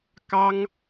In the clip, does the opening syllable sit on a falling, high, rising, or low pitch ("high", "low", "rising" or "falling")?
high